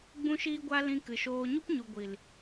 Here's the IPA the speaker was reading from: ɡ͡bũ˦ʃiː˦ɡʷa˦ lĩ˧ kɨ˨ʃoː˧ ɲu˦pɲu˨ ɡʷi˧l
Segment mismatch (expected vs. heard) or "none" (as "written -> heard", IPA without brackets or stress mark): i˧ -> i˨